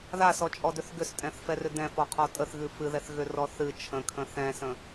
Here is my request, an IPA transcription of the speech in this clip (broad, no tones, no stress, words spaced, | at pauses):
ðasɔt͡ʃʼɔdʏθ ɡʏstʼɛ̃θfɛrʏ dɛ̃fɔqʰɔ tʼəθɣɨ fɨðɛθɣʏrɔ θɨ t͡ʃʰə̃kʰə̃ θɛ̃sə̃